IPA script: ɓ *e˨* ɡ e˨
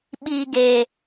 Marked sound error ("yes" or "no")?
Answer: yes